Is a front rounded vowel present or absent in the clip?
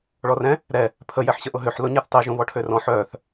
present